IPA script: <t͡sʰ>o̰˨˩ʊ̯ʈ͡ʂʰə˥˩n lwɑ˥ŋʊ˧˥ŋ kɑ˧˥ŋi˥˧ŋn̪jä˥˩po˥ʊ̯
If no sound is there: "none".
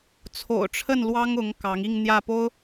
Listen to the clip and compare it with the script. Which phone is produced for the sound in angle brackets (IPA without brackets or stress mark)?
t͡sʰ